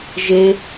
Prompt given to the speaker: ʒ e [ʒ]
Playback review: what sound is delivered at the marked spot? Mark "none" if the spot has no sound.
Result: none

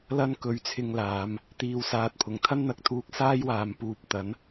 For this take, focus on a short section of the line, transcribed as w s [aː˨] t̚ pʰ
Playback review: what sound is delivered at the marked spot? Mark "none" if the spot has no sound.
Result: aː˨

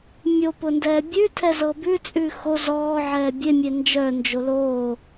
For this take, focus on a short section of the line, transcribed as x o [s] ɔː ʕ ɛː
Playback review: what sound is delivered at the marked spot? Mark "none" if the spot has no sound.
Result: z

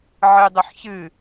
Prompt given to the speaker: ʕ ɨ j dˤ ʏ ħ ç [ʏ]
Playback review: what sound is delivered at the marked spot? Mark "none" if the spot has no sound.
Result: ɨ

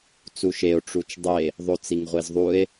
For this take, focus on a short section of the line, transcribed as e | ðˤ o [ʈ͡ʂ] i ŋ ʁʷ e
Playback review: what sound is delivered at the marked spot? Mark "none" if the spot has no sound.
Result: t͡s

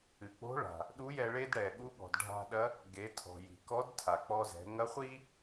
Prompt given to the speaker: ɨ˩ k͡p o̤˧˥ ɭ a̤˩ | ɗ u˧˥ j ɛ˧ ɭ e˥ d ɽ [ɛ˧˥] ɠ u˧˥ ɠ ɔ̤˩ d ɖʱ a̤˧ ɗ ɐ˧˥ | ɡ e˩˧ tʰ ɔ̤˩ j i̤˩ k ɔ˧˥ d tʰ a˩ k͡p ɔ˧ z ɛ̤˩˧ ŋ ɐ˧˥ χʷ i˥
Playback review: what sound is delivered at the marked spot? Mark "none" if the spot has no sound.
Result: ɛ˩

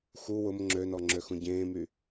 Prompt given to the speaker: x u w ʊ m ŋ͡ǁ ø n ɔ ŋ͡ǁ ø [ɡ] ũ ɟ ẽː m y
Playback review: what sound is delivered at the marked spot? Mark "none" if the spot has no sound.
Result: x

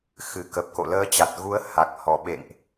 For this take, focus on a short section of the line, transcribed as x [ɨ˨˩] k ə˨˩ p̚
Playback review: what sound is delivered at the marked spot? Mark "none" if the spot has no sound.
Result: ɨ˨˩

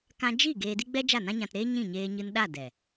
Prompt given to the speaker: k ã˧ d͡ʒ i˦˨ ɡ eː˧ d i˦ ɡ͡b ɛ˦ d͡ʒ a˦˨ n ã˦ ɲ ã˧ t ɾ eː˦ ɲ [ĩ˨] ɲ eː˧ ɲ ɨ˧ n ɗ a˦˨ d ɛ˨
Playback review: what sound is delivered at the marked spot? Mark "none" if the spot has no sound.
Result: ĩ˦˨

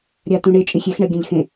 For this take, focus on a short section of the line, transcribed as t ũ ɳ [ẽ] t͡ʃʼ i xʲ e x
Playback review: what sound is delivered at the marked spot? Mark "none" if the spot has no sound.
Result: e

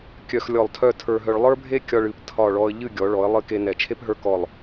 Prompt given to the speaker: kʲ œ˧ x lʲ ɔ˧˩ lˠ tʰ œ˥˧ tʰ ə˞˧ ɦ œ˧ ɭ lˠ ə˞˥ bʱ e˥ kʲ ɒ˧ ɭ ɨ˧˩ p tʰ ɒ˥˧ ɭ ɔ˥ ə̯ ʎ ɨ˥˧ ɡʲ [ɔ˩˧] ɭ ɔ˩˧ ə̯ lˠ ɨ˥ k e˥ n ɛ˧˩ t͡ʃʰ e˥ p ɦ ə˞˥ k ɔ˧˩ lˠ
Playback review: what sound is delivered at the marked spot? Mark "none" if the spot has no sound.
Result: ɔ˩˧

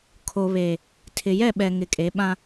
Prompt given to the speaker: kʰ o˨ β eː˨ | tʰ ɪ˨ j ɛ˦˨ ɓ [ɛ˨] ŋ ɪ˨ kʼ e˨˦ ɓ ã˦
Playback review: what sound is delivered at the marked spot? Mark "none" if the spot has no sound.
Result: ɛ˨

